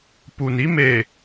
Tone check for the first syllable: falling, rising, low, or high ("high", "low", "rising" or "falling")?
low